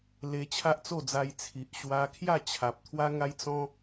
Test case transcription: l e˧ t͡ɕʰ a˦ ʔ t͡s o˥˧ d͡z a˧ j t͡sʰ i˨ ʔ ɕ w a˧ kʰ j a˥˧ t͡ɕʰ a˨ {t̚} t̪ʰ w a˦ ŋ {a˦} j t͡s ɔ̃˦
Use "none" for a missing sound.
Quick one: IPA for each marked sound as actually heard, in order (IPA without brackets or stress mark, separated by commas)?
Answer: p̚, a˦